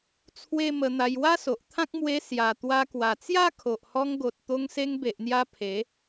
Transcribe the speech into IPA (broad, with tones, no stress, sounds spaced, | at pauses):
t͡sʰ w e˦ m ə˧ n̪ a˧ j w a˦ s o˨ ʔ t̪ʰ ã˦ k̚ m w e˧ s j a˨˩ t̪ w a˧ k w a˨˩ t͡s j a˦ kʰ o˨ ʔ h ɔ˧ ŋ ɡ o˨ t̚ t̪ o˧ ŋ s e˧ ŋ b e˨ ʔ n̪ j a˧ pʰ e˨˦